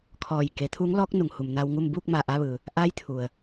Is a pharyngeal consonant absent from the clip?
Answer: yes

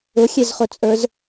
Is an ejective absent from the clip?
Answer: no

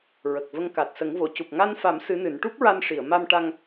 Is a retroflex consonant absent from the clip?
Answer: no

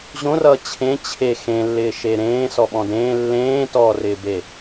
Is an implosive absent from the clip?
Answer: no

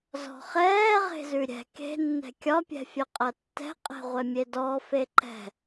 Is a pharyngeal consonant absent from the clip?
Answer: yes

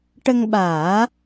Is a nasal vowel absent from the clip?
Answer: yes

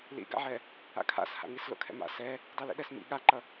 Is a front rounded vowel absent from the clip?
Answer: yes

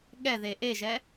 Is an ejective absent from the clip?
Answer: yes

